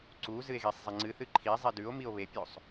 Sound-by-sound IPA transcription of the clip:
ǀ u z ɨ e̯ ɣ i sˤ zˤ e ŋ͡ǀ ɨ θ ɨ ǃʰ i zˤ i d ʉ o̯ m i o̯ β e pʲ o sˤ

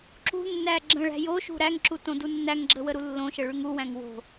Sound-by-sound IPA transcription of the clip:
ǁ ṳ nː æ ɡ͡ǁ ə̃ ɭ æ̤ j o ʃ ṳ ɾ æ ŋ ǁ u t õ d u nː æ ŋ ɡ͡ǁ ə w ə ɾ u lː õ ʃ ə ɭ ʉ ŋ u w æ̃ ŋ w o̤

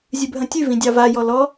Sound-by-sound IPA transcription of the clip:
zʲ ʉ bʱ ɐ̃ tʲ ʉ v ĩ dʲ ɑ v a j ɔ l ɔ

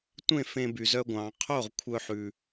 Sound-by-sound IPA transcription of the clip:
tʷ ẽ˥˩ f ẽ˧ b y˩ z œ˧ ɡʷ ɑ̃˩ qʰ o˥˩ ʁ kʷʰ œ˧ ħ ʉ˩

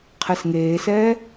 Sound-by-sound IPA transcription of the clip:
qʰ ɛ s ŋ eː s ɛː

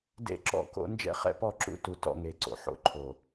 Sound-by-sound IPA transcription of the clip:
d ḛ˦ ǁ ɔ̰˦ k o̰˦ n d͡ʒ ɛ̰˦ χ ɛ̰˦˨ p ɔ˦˨ ǁ ṵ˦ t u˨ t ɔ̰˦˨ ŋ e˨ ǀ o̰˨ ħ o̰˦ ǃʰ o˨

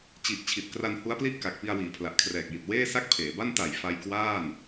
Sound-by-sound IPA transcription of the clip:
t͡ɕ i˨˩ ʔ t͡ɕʰ i˨˩ t̚ k r a˧ n h u˦˥ a̯ p l i˥˩ ʔ k a˨˩ k̚ p i˧ a̯ w iː˩˦ pʰ l a˨˩ ʔ kʰ r ɛː˨˩ k̚ j i˨˩ t̚ w eː˥˩ s a˥˩ k̚ pʰ eː˩˦ b a˥˩ n t a˨˩ j f a˧ j k w aː˥˩ n

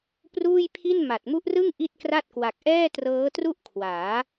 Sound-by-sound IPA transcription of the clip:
p r uː˥˩ j pʰ i˥˩ n m a˨˩ t̚ m u˦˥ ʔ r ɯ˥˩ ŋ ʔ i˥˩ t̚ k r a˥˩ t̚ k w a˨˩ k̚ ʔ ɛː˥˩ t r ɤː˦˥ t r u˥˩ ʔ kʰ w aː˩˦

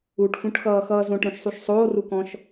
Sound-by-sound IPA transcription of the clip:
u ʈ f ũ ʈ x ʌː x ʌː z õ ʈ ɾ õ ʃ sˤ u ʃ sˤ oː r u k ɔ̃ ʃ

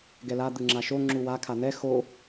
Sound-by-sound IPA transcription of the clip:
ɡ ɛ l a d̪ ɯ ŋ͡ǁ a ʃ o ŋ͡ǁ u w a kʰ a n̪ ɛ x o

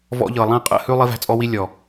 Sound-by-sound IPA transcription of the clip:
v ɔ̰˧ ʎ ɤ˨ lˠ æ̃˦˨ qʼ ə̰˦˨ h ʉ˦ lˠ i˧ v æ̤˧ t͡sʼ ɔ˧ w i˧ lʲ ɔ˨

